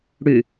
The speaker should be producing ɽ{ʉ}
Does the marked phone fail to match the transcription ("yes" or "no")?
no